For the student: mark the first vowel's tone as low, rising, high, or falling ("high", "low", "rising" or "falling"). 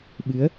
rising